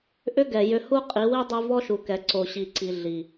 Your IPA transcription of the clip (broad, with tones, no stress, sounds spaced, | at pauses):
ʔ ʏ˦ ɡ ɛ˨ j ʏ˧ h u˦ qʼ i˨˦ w i˦ dˤ u˧ v ɔ˦ ʃ u˨ k ɛ˨ ǀ o˨ ɕ i˨ ǀ i˨ ɮ i˨